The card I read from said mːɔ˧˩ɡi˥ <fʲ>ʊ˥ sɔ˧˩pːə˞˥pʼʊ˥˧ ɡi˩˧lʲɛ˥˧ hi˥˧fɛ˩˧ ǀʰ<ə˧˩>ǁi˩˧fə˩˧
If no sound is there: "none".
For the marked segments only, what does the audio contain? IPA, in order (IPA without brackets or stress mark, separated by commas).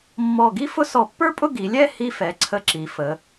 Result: f, ə˧